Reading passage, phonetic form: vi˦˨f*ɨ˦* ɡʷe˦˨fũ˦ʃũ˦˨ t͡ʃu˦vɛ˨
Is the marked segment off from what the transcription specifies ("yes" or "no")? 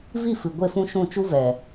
yes